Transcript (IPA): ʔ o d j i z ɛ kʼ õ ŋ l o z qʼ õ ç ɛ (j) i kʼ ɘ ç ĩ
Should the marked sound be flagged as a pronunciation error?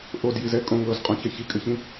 yes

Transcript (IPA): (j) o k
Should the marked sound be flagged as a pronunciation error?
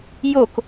no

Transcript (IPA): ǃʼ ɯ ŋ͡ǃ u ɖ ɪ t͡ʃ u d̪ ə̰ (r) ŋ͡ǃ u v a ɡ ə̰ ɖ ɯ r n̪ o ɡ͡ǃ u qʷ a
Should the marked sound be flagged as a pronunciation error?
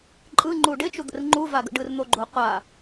no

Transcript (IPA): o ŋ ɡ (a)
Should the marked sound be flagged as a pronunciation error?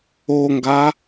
no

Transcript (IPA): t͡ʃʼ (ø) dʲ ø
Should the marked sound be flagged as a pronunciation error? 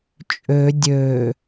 no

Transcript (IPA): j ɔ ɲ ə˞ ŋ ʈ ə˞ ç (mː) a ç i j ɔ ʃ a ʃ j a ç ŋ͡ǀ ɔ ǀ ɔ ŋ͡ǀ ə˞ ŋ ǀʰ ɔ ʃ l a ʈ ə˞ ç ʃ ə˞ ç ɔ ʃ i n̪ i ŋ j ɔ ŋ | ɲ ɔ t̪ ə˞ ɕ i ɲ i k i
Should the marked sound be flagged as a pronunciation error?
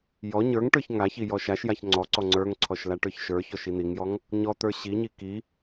yes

